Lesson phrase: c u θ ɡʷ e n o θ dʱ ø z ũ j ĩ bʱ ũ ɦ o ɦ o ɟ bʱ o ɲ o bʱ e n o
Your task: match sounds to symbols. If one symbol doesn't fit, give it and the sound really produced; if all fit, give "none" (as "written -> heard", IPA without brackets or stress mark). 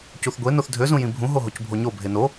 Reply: ɟ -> c